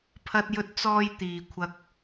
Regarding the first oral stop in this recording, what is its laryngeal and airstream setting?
aspirated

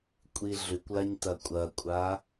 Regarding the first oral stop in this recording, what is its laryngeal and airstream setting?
ejective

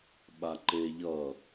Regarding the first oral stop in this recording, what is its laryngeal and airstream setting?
implosive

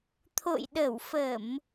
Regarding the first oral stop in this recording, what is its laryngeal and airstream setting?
aspirated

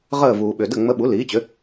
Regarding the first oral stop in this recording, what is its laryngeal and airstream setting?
implosive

